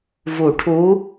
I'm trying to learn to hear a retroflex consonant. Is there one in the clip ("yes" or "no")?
yes